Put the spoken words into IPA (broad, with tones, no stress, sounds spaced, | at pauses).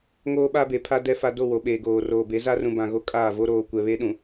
ŋ oː˦ ɓ a˦ b e˨ pʰ a˦ d ɛ˦ f a˦ d o˦˨ w o˨ ɓ eː˨ ɡ oː˨ r oː˨ b e˨˦ z a˦ r ũ˨ b ã˨ ɣ o˦ kʼ aː˦˨ v o˦ ɾ oː˨ kʷ ɛ˨ β e˦ ɗ ũ˨